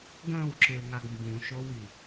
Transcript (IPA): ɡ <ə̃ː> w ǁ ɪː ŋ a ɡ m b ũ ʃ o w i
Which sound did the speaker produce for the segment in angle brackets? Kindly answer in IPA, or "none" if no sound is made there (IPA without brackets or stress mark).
ə̃ː